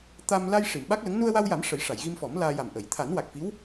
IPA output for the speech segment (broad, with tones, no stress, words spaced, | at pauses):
t̪a˧m la˧j ʂi˨˩˨mɓa˦˥k̚lə˧˥ŋ nu˧ə̯wa˧wja˨˩˦m ʂə˨˩˦jʂa˨˩˨jɣi˧mfɔ˨˩˦m laː˧ja˨˩mʔə˨˩˨j t̪ʰa˨˩˦nwa˨˩k̚fi˧˥w